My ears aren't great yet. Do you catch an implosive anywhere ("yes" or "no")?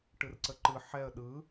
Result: yes